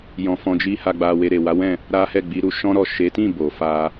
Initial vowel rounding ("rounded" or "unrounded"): rounded